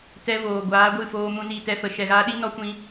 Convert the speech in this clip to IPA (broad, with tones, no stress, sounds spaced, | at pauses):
t ɛ˦ v oː˨ ɡʷ aː˨˦ ɡʷ ɨ˦˨ f oː˧ m ũ˧ n i˦˨ t ɛ˦ f ə˨ ʃ ɛ˨ ɣ aː˧ ɗ i˦ n ɔ˦ kʷ ĩ˧